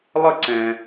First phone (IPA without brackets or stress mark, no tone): lˠ